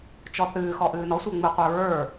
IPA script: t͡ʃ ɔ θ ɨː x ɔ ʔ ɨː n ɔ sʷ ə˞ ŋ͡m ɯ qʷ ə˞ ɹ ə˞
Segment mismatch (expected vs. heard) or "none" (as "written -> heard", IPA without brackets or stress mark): none